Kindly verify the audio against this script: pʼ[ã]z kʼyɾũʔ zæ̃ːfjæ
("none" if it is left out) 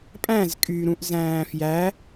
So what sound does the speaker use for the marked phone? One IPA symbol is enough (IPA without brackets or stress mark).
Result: æ̃